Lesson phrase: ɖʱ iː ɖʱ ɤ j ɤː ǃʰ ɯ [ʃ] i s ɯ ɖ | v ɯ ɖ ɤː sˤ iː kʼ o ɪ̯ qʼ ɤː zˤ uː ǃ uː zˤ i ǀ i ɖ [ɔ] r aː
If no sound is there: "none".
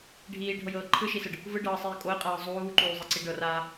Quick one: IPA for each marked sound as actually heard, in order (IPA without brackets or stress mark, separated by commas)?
ʃ, ɤ